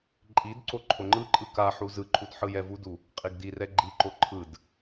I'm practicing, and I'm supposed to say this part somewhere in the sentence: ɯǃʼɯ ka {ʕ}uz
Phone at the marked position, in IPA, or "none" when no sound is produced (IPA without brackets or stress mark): ħ